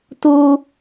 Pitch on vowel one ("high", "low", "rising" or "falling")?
high